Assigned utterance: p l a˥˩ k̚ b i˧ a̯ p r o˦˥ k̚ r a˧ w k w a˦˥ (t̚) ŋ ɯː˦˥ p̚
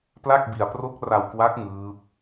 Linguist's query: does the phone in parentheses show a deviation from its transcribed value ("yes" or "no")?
yes